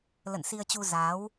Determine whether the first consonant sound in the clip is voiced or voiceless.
voiced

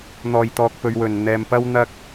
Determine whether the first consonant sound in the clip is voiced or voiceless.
voiced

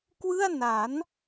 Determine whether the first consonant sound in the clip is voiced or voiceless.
voiceless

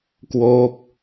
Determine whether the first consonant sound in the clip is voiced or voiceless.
voiceless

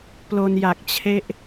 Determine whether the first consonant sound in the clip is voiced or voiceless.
voiceless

